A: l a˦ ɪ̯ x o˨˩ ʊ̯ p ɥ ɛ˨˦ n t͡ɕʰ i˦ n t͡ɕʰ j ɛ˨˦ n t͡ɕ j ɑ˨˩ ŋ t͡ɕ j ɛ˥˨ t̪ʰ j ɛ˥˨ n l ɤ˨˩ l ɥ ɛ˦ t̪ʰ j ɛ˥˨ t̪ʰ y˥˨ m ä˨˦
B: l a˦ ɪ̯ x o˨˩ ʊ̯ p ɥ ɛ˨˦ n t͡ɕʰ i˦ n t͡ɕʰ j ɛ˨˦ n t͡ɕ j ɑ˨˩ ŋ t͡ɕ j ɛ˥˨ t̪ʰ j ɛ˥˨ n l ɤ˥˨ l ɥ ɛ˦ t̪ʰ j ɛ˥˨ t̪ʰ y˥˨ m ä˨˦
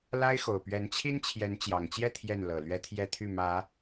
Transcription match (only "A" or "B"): A